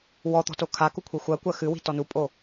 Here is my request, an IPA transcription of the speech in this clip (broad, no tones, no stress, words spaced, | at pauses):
wɔ t̪ɔ̤tokʰaku kʷʰixʷɜkʷɜ xɨwi̤ tɔnupʼo